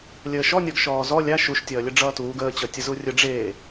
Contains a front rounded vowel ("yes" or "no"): no